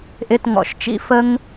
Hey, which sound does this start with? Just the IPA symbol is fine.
ʔ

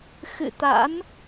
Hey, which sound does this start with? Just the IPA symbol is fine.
x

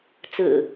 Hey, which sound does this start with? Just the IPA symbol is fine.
t͡s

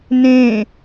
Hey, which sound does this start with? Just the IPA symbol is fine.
n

